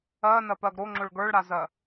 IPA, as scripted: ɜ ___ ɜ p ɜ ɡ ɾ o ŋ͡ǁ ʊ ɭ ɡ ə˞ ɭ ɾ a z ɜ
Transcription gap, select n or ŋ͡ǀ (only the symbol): n